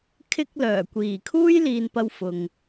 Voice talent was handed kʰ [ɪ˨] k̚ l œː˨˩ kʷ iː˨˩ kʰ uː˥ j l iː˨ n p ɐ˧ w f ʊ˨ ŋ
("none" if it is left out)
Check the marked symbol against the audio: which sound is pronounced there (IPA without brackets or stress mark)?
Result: ɪ˨